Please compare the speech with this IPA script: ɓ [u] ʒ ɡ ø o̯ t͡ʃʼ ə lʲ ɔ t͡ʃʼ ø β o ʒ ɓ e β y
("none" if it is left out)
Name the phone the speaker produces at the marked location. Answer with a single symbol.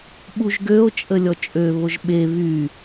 u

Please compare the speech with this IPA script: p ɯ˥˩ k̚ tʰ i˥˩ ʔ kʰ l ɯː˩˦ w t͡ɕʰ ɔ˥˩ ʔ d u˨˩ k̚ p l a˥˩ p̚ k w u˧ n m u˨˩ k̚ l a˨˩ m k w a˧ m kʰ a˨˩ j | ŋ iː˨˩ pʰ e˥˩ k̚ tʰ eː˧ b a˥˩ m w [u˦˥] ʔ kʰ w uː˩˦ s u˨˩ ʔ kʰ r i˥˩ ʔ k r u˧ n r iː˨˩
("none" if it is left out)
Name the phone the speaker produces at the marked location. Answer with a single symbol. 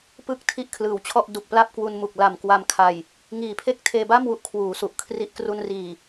u˥˩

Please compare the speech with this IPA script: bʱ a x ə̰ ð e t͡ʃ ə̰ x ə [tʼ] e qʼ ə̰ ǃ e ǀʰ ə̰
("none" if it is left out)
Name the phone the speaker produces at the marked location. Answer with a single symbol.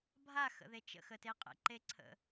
t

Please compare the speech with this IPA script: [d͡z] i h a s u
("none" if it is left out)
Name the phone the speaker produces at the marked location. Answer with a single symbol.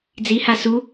d͡z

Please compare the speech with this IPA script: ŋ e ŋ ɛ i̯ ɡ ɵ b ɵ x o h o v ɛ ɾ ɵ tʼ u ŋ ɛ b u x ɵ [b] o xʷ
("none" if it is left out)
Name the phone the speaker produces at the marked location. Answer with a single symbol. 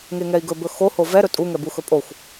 pʼ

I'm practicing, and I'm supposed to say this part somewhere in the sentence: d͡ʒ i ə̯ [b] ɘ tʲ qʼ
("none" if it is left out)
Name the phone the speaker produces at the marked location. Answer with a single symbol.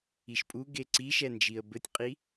b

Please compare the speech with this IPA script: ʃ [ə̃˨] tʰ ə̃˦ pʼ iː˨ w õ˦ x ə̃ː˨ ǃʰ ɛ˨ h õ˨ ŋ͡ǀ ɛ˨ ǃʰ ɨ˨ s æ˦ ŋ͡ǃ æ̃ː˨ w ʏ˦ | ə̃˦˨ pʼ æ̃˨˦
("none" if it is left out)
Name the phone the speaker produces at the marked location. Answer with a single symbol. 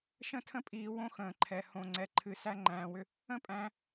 ə̃˦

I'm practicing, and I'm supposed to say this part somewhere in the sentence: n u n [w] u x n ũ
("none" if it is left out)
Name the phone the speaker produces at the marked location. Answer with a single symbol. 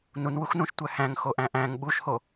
w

